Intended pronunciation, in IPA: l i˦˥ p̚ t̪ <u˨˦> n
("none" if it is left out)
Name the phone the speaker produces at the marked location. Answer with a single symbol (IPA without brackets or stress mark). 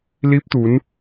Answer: u˨˦